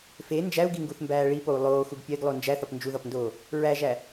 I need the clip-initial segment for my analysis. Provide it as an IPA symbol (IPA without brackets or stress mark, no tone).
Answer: f